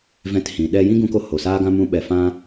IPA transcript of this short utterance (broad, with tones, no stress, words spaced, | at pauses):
vɛ̃˧t hĩ˨ ɗɛ˧ jĩ˦ɡũ˧ko˧ ho˨saː˦ɡã˦ mũ˧ ɓɛ˨fã˦